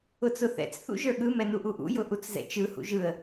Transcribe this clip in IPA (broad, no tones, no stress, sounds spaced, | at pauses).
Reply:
ʊ t͡s ʊ θ ɛ̰ t͡s θ ṵ ʒ ə˞ ɠ ɯ m ɛ n u ʔ u ʔ ṵ j ʊ ʔ u t͡s z ɛ̰ t͡ʃ ɯ h ṵ ʒ ɯ ə̯